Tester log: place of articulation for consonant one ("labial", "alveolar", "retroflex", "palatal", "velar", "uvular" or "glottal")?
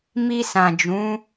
labial